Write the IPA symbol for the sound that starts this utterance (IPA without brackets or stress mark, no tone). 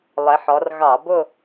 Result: lˠ